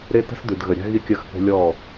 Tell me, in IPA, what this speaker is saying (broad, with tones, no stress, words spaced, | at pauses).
ɾe˦tə̤˦s dʉ˨dɣə˨ɾʲa̤˦ ɣi˦kʲə˦˨xθə̤˦ lʲɔ˦˨